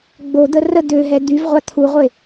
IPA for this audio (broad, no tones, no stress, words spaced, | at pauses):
ɡ͡bod̪ə rə d̪øɦɛ d̪yvʁʷa t̪ʰuʁʷe